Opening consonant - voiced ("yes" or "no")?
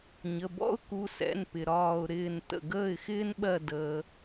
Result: yes